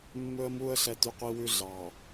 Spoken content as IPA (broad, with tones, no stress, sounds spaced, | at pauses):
mː ɵ˦ ə̯ m u˦ ə̯ ɬ ɛ˦ t y˦ qʷ i˦ w ʉ˦ ɮ ɑ˨